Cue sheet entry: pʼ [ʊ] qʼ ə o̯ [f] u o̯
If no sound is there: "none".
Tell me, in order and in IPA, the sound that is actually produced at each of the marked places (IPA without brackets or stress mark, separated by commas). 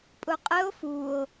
ʊ, f